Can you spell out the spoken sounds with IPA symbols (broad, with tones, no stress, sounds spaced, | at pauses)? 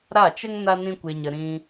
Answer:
ɾ a˦˨ t͡ʃ ə˦ ŋ n a˦ n ĩ˦ kʷ e˧ ɲ ə˧ ɾ ĩ˧